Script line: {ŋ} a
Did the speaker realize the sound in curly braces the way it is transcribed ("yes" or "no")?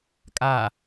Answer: no